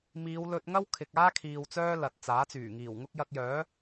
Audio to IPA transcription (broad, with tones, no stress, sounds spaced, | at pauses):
m iː˨˧ w l ɵ˧ t̚ ŋ ɐ˥ w kʰ ɪ˨ k̚ aː˥ kʰ iː˨ w t͡s œː˥ l ɐ˨ t̚ t͡s aː˨˥ t͡s yː˨˩ ŋ iː˨˩ w ŋ ʊ˥ k̚ j ɐ˧ k̚ j œː˨˥